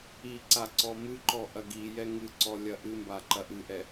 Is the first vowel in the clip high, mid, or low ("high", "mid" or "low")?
high